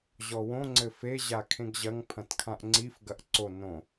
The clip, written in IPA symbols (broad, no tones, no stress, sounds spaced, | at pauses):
ʑ ɔ w õ ŋ͡ǀ ɘ f e ʑ a kʰ ẽ ɡ ʑ ɐ ŋ pʰ ɐ̃ t kʰ ã ʔ ŋ͡ǀ i f ɡ ɐ ʔ ǀ o n õ